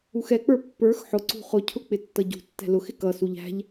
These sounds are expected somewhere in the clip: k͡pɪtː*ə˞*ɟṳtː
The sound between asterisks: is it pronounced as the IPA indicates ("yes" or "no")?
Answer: no